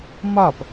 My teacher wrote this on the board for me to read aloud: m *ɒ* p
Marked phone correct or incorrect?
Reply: correct